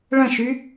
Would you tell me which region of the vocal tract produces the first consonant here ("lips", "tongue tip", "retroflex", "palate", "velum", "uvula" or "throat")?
retroflex